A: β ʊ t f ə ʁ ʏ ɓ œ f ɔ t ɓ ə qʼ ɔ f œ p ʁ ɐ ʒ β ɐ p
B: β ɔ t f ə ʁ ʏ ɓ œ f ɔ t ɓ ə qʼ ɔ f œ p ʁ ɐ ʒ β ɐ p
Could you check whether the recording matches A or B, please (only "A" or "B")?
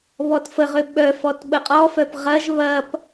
B